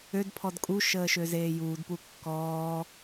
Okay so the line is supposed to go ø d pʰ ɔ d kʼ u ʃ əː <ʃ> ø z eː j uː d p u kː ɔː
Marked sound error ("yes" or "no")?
no